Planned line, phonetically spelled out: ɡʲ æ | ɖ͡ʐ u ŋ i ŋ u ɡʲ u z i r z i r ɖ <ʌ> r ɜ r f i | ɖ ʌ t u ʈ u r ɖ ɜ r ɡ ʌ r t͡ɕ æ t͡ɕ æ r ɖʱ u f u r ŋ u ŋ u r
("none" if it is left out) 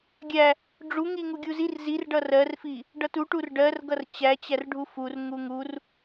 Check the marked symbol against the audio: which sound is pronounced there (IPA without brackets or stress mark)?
ʌ